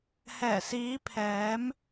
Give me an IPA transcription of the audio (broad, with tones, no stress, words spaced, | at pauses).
hɛː˨˩siː˨˧pʰɛː˨˧m